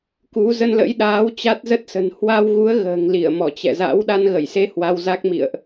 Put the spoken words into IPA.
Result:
k u˨˦ z ə˧ n l ə̰˧˥ j ɗ aː˨˦ w t͡ɕ a˦˥ t̚ z ə˦˥ t̚ s ə̤˨˩ n h w a˧ w ɣ u˨˦ ə̯ ɣ ə̤ː˨˩ ŋ l i˧˩ ə̯ m ɔ˧˩ t͡ɕ ɛ̰˧˨ z a̰˧˥ w ɗ a˧ n ɣ ə˧˩ j s e˧ h w a˧ w z a˦˥ k̚ m ḭ˧˨ ə̯ ʔ

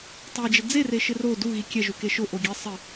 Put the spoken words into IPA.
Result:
tˤ e d͡ʒ ɪ d͡z e r e ʃ ɪ r o d u ɣ i kʲ ɛ ʒ u k e ʃ ʊ ʔ o ɡʲ ɛ sˤ ɪ

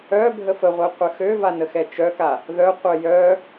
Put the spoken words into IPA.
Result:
œ bʱ ə f ə ʁʷ ɛ qʷ ə x ø v a n ə x ɛ t͡ʃ œ k a | ð œ qʷ œ j œ

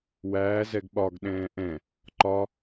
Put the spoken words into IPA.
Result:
w æː z ɛ ɡ ɓ ɒ ɡ ɗ ɛ̃ː ʔ ɛ̃ | ǃ ɒ

